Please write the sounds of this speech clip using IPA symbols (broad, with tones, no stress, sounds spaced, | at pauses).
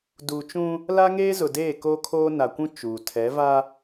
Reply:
d uː˨ t͡ʃ ũ˦ | l a˦ ŋ eː˦ z ʊ˨ d eː˦˨ k o˦ kʰ oː˦ n a˨ kʷ ũ˦ t͡ʃ uː˨ tʰ ɛ˨˦ v a˦